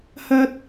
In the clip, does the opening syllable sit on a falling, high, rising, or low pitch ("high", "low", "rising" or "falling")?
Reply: high